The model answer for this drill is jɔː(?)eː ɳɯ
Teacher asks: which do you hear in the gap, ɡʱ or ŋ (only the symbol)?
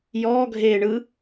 ɡʱ